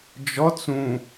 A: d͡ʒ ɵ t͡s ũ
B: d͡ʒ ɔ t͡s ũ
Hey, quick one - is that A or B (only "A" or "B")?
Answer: B